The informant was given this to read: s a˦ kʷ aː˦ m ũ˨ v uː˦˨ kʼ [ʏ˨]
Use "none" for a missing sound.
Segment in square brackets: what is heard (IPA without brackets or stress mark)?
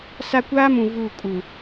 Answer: u˨